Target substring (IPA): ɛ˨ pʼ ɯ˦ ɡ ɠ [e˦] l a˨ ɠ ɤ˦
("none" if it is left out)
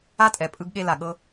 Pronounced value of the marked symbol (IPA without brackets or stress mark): e˦